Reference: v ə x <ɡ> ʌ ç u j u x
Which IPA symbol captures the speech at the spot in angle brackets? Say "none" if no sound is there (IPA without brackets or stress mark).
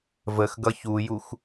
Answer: ɡ